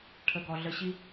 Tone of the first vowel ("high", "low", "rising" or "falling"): low